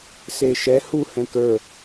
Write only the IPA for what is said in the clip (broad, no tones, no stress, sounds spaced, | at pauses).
s e ʃ ɛ h u h ɛ̃ k ə˞